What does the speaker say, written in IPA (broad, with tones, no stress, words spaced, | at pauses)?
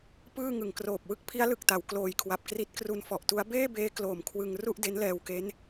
pɯː˥˩ŋɯ˨˩ŋkroː˨˩p̚ wɯ˥˩k̚pʰi˦˥a̯lɯ˨˩k̚ta˩˦w kloː˧jkʰwa˨˩p̚ kri˦˥t̚kru˧nfɔ˨˩ʔtu˦˥a̯ beː˥˩beː˦˥ kloː˨˩mkʰwɯ˧ŋ ru˥˩ʔde˦˥nlɛː˧wke˦˥n